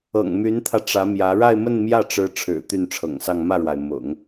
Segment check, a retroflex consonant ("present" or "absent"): present